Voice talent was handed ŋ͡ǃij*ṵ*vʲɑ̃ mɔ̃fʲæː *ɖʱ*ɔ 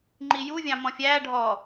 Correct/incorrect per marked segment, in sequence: incorrect: u, correct

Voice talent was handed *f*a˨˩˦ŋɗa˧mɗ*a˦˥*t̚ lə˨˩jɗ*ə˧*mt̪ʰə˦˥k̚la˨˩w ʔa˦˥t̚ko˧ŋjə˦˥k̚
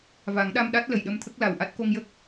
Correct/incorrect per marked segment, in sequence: incorrect: v, correct, correct

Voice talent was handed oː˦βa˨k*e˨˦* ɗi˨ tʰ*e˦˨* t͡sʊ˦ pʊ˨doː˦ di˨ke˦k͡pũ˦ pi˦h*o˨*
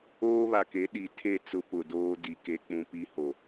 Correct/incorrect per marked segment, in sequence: correct, correct, correct

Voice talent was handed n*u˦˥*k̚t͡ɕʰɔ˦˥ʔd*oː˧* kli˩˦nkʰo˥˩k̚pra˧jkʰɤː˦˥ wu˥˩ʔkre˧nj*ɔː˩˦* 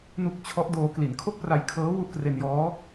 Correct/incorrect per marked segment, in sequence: correct, correct, incorrect: ɔː˦˥

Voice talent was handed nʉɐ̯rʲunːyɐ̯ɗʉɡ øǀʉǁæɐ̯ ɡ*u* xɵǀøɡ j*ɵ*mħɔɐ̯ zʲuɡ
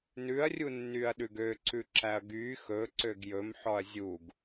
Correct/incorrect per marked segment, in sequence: incorrect: y, correct

